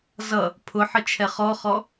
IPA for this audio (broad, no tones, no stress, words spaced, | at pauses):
zʌ | pʰʊ ħət͡ʃʰɛχɔχɔ